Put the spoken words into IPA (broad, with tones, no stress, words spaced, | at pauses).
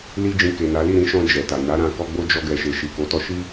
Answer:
li˦d͡ʒĩ˧ke˨na˨˦ li˦˨ɾĩ˨˦ʃɔ̃˧ d͡ʒɛ˨ta˨ na˨˦ ɾã˧kɔ˧ɡ͡bo˦d͡ʒɔ˧ ɡɛ˨ʃe˨ʃi˨ ko˨˦tɔ˧ʃi˦